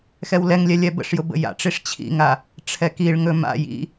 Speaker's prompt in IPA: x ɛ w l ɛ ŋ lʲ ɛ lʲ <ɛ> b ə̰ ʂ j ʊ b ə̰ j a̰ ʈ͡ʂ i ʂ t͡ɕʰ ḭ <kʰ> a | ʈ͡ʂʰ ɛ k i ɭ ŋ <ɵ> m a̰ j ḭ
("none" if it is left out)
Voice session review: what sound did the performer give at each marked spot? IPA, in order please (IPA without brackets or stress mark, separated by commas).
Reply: ɛ, ŋ, ɵ